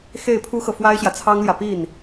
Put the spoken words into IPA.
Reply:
x e˥˩ ɪ̯ pʰ u˥ x ɤ˨ f w a˥ ɪ̯ ɕ j ä˨ t͡sʰ ɑ˥ ŋ l j ä˨ p i˥˩ n

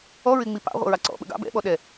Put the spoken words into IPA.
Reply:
ɔ ɹ ɪ ŋ͡m i p ɑ̰ ʁʷ ə̰ ɹ ɑ ǀ ɔ̰ ɓ ə̰ ɡ ɑ̰ b ɛ̰ ɓ ɔ ɗ ɛ

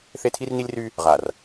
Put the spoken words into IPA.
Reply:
θ e˦ tʰ i˦ r n i˦ lʲ r y˦ | ʁ a˨ r

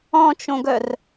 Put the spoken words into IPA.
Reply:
ɔ̃ t͡ʃ õ ɡ œ r

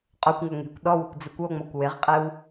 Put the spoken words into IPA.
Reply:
qʼ o kʷ ŋ o ŋ e̤ kʷ ɗ ɔ w o̤ kʷ d͡z ɪ kʷ o ŋ͡m ɔ kʷ w ɪ ʁ qʼ ɪ w

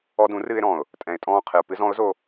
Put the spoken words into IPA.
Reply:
ɔ˧ d ũ˨˦ r ɨː˧ ɪ̯ ɾ ɔ̃ː˨ ʊ̯ | tʼ ɛ̃˨ ɪ̯ tʼ ɔ̃ː˦˨ qʰ ɨ˨ ʊ̯ p ɨ˧ z ɔ̃˨˦ ʊ̯ z o˧

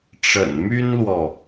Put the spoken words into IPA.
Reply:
ʈ͡ʂ ə̰˨˩ n m y˥ n l w ɔ˨

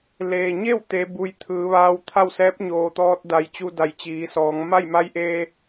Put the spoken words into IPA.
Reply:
l eː˩ ɲ e˥˨ w t̪ e˩˧ b u˩ j t̪ʰ ɯː˩˧ ʋ aː˧ w t̪ʰ a˥˨ w s ɛː˧˥ p̚ ɲ oː˩ t̪ ɔː˧ t̚ d a˩˧ j t͡ɕ u˧ d a˩˧ j t͡ɕ iː˩˧ s ɔː˩˧ ŋ m a˥˨ j m a˧˥ j ʔ eː˧

